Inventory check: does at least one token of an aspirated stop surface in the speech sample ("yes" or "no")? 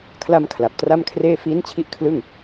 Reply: yes